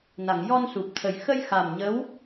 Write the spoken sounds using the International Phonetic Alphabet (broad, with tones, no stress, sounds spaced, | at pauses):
n a˨˩˨ ŋ j ɔ˧ n s u˨˩ p̚ t̪ʰ ə˨˩ j x ə˧ j x a˨˩ m ɲ ə˧˥ w